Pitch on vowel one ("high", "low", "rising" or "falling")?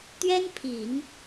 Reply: high